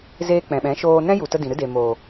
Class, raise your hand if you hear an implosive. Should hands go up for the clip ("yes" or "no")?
yes